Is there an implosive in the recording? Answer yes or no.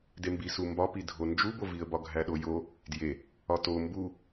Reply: yes